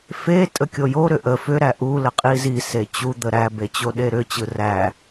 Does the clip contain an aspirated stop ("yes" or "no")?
no